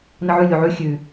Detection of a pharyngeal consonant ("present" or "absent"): present